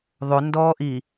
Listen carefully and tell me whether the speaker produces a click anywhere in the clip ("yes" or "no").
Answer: no